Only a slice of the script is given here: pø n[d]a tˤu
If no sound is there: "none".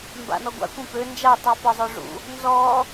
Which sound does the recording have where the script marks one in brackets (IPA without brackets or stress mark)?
d͡ʒ